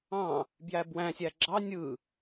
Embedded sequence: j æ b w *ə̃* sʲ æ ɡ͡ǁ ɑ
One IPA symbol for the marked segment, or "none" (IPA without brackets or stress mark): æ̃